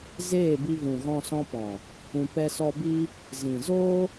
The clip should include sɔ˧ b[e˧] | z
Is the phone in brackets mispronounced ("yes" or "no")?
yes